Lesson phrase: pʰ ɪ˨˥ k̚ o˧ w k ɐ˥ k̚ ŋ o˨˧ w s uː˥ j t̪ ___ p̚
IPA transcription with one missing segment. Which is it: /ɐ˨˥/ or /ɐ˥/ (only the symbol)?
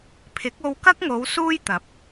ɐ˨˥